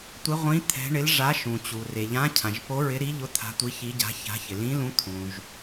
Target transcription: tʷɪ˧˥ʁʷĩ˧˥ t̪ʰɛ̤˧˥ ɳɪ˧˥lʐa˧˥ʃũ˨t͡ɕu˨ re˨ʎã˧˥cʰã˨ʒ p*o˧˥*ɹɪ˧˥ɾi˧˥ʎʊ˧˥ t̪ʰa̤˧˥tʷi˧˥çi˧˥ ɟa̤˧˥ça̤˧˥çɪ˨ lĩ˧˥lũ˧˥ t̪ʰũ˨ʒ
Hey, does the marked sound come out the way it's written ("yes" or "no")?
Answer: yes